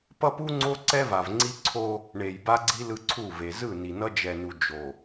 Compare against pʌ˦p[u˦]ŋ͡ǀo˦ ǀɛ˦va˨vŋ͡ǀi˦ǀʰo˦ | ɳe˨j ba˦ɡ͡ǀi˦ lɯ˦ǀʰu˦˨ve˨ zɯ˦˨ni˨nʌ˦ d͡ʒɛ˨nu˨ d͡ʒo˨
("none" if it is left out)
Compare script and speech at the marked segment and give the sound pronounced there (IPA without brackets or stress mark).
u˦